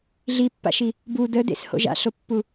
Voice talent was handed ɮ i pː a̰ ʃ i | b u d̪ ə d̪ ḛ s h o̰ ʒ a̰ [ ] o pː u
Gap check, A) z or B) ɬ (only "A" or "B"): B